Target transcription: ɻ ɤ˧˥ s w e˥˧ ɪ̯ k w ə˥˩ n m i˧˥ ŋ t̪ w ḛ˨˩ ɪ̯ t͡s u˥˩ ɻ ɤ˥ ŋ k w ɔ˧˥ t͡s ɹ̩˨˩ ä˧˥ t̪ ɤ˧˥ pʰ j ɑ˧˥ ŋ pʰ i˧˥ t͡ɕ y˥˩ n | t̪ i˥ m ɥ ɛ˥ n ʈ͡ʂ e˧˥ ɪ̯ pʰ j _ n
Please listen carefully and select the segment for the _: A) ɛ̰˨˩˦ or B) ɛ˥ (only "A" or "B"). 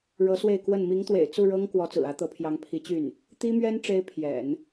A